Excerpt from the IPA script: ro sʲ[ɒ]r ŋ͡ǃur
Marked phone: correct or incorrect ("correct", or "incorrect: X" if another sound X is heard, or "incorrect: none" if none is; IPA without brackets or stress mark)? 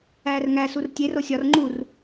correct